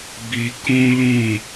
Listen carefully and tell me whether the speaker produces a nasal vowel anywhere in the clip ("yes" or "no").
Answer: yes